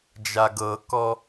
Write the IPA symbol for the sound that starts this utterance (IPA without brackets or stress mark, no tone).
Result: d͡ʒ